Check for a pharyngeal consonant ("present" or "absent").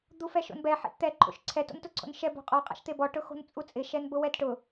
present